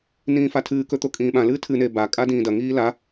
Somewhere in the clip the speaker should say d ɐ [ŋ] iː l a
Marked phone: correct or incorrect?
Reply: correct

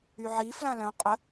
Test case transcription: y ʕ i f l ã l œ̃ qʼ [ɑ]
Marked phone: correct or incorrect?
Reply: incorrect: ə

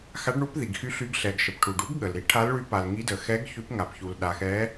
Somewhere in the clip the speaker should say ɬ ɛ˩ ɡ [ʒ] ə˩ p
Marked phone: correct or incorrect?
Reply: incorrect: ʃ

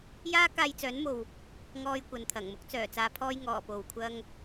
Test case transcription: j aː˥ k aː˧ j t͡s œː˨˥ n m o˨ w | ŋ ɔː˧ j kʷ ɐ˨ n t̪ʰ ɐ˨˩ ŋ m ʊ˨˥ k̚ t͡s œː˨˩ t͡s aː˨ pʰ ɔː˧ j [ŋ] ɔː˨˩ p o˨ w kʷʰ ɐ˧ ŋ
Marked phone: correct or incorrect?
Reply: correct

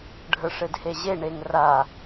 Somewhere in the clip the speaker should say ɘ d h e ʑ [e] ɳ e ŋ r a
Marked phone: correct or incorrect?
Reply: correct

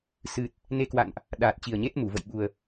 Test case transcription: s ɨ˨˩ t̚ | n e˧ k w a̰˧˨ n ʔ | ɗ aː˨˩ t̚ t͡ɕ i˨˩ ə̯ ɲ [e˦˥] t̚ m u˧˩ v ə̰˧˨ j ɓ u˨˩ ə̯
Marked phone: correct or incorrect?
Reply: correct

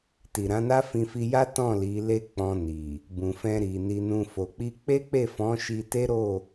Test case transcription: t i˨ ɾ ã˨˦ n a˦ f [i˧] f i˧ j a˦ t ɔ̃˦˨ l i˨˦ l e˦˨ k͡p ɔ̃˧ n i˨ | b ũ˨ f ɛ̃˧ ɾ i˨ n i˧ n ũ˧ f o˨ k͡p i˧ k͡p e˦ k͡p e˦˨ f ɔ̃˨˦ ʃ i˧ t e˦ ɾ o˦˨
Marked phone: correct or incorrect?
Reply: incorrect: ĩ˧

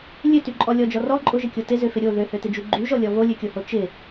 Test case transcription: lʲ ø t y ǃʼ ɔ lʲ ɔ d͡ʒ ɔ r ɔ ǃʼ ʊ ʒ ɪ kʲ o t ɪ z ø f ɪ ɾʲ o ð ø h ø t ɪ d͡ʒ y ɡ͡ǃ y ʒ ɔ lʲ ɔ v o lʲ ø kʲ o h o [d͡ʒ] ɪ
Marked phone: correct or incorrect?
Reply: incorrect: t͡ʃ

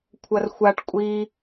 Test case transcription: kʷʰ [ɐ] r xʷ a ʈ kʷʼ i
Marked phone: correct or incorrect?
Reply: correct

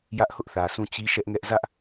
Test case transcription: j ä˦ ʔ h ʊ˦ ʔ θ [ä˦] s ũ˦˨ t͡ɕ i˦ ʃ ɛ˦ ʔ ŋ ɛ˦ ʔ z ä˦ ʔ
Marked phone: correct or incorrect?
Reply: incorrect: ä˨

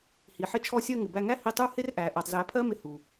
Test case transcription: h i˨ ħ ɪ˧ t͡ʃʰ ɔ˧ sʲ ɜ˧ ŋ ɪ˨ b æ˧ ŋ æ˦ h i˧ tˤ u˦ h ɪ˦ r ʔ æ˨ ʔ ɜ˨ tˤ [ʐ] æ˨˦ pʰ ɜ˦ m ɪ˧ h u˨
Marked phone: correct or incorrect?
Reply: incorrect: z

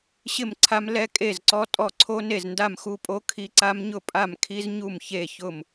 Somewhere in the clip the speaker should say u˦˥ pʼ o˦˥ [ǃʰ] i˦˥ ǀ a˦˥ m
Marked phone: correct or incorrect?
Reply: incorrect: kʰ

